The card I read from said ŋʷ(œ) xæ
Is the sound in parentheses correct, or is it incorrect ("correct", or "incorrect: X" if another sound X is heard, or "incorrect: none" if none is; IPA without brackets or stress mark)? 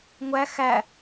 incorrect: æ